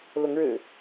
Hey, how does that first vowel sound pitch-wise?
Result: rising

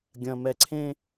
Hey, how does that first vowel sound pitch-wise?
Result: low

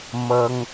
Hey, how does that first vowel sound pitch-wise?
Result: high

